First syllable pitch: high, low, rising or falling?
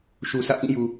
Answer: low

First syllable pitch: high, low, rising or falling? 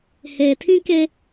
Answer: low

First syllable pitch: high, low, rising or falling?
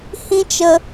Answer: high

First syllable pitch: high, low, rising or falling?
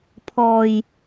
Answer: low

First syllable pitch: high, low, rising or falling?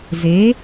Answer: rising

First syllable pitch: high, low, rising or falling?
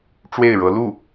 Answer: falling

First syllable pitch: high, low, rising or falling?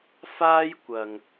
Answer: high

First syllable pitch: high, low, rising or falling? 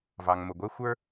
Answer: low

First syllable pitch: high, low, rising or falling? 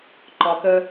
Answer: low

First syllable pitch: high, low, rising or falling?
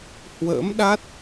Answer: rising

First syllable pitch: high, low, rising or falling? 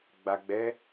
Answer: low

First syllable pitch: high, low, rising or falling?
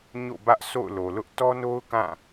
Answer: falling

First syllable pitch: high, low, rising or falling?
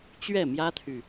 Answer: falling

